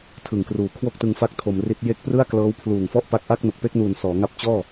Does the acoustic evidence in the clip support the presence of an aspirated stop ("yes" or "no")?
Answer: yes